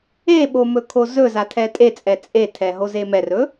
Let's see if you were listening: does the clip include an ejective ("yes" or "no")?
yes